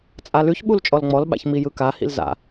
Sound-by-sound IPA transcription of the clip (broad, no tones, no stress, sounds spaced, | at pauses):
t͡sʼ a l ʉ ç ɓ u l t͡ʃʼ ɔ l ŋ͡m ɔ l ɓ a̰ ç m i j ɯ k a h ḭ l z a̰